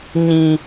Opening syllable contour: low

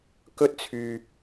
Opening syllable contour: high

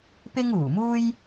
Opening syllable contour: high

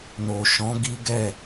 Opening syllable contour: low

